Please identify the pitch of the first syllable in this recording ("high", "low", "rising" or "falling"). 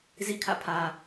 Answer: falling